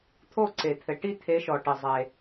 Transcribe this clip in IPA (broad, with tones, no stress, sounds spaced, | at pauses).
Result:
t̪ʰ o˦˨ ǀ e˩ t̪ʰ ɘ˩ ʈ i˦˨ t̪ʰ e˨˦ ʃ ɔ˩ ʈ ɨ˩ zˤ e˩